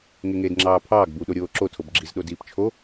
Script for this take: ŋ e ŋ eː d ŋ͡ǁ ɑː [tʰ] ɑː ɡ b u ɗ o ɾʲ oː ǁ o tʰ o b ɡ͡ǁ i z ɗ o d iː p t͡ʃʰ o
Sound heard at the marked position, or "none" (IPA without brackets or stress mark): pʰ